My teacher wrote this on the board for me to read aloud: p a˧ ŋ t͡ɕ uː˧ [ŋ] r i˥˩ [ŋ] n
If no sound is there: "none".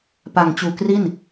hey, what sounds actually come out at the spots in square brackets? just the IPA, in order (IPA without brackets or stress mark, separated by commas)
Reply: k, none